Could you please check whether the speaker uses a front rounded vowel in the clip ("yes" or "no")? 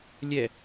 no